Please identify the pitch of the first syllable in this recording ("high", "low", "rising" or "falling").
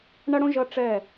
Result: high